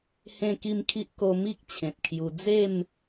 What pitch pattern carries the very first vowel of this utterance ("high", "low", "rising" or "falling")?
falling